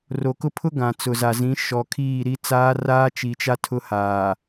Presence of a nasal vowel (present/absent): present